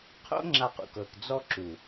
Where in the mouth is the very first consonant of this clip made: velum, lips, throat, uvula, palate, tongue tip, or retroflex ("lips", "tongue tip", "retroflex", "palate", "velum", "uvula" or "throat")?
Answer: uvula